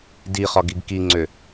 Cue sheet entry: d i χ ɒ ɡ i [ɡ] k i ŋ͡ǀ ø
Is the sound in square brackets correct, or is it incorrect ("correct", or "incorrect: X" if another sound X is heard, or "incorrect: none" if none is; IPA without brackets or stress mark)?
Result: correct